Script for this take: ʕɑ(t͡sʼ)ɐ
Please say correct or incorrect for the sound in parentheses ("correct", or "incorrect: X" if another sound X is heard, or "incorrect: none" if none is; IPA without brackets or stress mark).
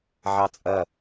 correct